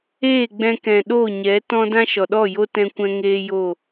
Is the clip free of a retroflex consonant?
yes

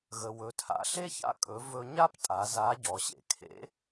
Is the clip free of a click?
yes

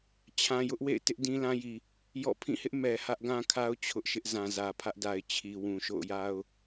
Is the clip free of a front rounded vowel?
yes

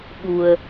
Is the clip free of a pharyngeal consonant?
yes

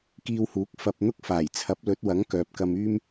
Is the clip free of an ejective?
yes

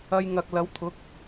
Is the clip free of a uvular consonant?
yes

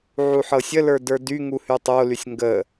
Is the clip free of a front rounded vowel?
no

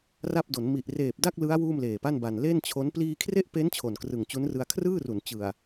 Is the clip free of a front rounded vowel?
yes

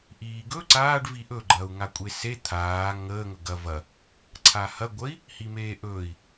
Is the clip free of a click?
no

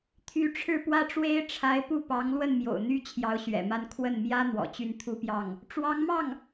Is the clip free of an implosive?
yes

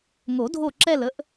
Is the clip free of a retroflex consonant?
yes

